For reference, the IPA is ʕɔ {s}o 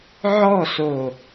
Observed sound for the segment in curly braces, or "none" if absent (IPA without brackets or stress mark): s